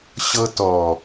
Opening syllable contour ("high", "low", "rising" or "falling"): high